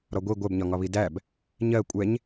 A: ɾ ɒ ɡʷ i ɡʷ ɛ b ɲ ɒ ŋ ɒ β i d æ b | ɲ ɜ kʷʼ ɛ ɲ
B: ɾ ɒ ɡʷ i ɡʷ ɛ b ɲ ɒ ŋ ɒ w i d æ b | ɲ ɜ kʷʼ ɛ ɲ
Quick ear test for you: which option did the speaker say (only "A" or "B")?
A